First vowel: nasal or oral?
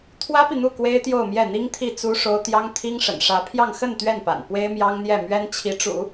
oral